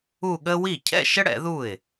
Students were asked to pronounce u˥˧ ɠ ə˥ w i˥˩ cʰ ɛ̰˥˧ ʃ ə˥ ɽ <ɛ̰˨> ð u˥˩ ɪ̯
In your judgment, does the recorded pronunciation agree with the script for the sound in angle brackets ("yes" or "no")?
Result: no